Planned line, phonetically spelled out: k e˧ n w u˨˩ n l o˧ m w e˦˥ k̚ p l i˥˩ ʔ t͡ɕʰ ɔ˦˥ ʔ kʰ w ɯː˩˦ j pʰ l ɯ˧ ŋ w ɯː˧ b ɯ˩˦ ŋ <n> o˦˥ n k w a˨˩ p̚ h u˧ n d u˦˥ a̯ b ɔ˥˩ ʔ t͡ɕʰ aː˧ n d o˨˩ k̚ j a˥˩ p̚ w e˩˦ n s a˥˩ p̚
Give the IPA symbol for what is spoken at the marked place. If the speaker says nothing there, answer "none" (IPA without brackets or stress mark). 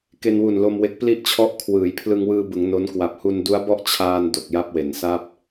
n